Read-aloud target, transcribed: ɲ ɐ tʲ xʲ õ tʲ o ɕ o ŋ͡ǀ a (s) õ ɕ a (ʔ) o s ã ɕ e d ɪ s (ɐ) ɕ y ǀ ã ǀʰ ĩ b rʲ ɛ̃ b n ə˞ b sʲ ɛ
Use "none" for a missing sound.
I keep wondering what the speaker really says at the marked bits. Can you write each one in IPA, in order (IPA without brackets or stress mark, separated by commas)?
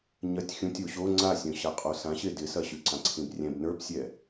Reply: sʲ, qʼ, ɐ